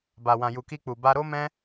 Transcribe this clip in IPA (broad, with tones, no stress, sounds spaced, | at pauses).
b a˨ w ã˨ j u˨ k i˧ k͡p u˨ b a˧ ɾ o˦ m ɛ̃˦